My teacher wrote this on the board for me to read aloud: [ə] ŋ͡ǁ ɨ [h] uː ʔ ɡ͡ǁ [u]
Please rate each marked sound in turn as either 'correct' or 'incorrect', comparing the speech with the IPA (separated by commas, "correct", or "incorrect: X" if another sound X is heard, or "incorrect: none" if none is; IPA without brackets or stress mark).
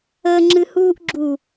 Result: correct, correct, correct